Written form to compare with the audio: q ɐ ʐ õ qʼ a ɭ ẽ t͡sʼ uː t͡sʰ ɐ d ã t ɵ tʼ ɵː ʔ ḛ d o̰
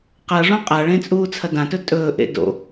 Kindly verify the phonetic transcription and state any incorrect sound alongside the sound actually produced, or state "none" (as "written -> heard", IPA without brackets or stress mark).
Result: none